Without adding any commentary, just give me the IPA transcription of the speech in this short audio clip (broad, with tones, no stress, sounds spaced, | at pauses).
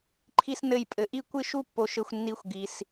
ǃʰ i˥ s n ɘ˥˧ j pʼ ɘ˧ ʔ i˥ kʷ ɨ˥˧ ʃ u˥˧ pː o˧ ʃ ɘ˧ xʷ nː i˧ xʷ ɡ i˧ s